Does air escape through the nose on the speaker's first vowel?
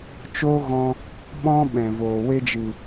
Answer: no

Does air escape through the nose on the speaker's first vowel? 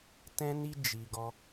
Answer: yes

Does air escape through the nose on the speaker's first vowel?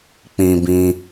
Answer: yes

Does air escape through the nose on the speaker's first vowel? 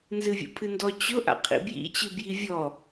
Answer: no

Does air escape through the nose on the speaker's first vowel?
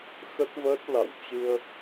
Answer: no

